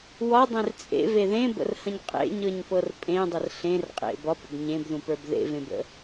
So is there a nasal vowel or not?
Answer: yes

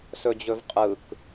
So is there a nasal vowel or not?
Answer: no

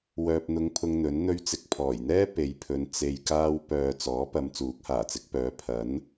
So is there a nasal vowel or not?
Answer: no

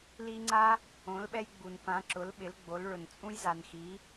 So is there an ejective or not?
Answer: yes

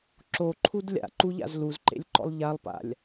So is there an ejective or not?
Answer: no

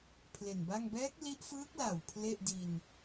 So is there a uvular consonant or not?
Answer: no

